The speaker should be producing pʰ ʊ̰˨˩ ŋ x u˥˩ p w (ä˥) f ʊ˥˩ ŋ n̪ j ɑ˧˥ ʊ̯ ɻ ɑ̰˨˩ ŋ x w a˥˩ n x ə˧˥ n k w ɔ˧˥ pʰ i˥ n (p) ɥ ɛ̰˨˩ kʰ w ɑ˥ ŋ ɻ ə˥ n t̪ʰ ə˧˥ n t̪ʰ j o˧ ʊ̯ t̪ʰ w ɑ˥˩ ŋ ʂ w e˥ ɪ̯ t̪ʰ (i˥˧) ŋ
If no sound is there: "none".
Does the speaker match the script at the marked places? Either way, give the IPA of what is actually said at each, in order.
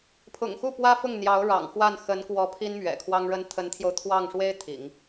ä˥, m, ḭ˨˩˦

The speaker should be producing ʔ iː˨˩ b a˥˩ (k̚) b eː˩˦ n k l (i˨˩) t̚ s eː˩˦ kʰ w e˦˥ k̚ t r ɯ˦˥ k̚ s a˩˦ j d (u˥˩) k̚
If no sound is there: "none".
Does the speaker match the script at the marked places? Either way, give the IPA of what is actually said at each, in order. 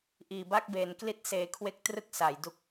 k̚, i˦˥, u˦˥

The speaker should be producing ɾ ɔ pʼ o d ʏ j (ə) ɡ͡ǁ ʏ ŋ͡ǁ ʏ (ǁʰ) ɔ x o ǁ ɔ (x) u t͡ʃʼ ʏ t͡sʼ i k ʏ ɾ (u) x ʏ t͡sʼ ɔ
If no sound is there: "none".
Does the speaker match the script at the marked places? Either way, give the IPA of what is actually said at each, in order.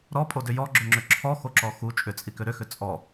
ɔ, ǁʰ, x, ʏ

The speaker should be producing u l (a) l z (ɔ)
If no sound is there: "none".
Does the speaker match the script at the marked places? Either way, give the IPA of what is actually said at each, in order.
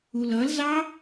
ʌ, ɑ

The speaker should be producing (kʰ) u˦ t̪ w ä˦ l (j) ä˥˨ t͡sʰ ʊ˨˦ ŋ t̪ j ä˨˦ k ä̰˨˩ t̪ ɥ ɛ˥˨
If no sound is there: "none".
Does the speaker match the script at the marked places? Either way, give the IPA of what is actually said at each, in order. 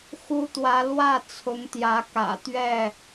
x, w

